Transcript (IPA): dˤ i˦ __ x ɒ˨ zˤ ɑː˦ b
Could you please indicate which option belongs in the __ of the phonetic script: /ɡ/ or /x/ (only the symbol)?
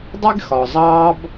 ɡ